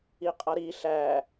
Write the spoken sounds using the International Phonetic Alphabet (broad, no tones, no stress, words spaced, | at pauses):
iqʼʌɾi ɬæ